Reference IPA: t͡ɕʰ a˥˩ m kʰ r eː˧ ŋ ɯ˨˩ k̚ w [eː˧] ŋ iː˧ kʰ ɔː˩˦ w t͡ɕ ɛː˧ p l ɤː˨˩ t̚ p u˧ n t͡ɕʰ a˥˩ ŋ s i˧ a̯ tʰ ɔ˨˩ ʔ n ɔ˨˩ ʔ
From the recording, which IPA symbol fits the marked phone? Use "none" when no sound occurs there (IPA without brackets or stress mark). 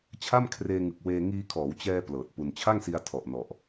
eː˧